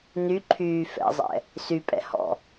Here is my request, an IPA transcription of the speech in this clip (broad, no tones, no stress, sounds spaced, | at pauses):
n y ǃʰ yː f ɛ̰ zˤ ɛ̰ | s y pʼ ɛ̰ h ɔ̰